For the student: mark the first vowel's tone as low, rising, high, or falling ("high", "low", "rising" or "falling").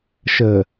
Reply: low